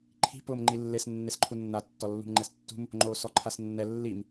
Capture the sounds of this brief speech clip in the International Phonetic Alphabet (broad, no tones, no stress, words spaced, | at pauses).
ǃʰi̤ pʊːmŋ͡ǃilːes nːesǃʰunːa tːɔlːṳmŋ͡ǃɛstːṳm | ŋ͡ǃoːsɔǃʰasnːɛ lːim